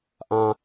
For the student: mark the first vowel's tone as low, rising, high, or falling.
high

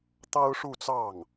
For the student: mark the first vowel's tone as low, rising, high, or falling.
high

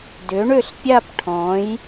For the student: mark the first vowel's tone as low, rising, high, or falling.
rising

